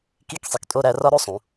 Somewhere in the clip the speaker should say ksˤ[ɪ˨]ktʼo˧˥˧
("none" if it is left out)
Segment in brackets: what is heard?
i˨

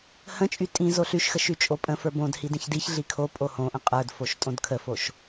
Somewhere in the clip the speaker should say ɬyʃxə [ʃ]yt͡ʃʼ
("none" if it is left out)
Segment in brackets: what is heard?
ʃ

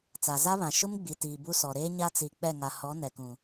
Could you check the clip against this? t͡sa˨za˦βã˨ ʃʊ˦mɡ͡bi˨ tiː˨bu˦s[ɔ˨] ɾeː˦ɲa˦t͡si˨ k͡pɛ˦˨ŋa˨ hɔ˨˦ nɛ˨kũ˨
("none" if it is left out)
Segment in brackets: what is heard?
ɔ˨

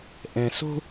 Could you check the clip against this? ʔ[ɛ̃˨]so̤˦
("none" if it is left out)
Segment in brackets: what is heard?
ɛ̃˨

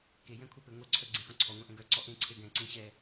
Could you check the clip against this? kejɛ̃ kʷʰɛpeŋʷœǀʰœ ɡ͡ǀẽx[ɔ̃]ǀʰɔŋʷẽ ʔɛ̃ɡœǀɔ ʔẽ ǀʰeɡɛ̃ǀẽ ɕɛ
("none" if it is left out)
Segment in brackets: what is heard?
ɔ̃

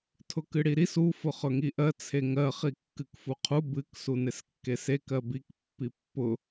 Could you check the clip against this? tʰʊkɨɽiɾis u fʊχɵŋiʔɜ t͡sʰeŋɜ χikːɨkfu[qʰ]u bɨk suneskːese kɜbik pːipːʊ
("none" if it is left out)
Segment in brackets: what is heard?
qʰ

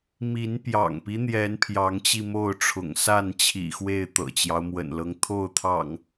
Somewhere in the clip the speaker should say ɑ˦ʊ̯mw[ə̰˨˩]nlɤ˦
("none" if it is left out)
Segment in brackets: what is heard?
ə̰˨˩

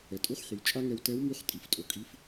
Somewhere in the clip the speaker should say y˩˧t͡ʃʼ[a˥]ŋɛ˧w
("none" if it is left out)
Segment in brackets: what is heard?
a˥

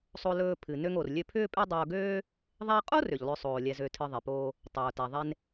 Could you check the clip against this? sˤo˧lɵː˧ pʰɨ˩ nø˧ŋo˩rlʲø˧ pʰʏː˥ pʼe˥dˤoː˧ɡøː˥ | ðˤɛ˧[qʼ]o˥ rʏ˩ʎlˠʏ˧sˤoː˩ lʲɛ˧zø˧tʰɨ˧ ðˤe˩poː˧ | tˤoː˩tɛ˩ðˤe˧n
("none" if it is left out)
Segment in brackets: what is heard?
qʼ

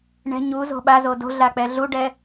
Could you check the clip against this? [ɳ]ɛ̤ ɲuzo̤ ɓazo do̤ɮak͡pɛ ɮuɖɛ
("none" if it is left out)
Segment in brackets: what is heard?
ɳ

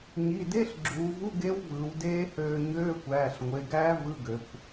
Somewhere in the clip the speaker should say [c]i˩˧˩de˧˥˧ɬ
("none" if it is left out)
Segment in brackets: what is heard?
ɲ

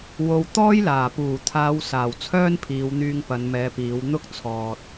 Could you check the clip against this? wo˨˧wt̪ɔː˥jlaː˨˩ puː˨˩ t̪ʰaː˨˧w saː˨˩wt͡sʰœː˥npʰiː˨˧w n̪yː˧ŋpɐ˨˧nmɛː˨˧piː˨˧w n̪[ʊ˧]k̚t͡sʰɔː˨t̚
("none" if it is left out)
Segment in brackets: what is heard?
ʊ˥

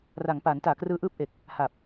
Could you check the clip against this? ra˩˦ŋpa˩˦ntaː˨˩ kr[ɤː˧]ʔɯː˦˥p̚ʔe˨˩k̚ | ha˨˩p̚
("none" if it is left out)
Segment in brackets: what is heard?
ɯː˧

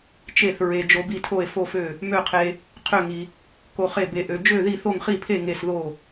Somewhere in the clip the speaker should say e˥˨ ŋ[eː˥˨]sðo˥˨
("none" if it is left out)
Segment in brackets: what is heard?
e˥˨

